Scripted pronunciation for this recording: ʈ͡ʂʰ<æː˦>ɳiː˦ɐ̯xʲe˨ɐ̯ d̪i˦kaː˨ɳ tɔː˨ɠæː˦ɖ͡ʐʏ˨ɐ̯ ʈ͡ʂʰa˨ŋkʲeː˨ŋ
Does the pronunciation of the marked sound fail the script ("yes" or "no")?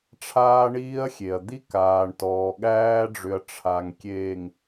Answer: yes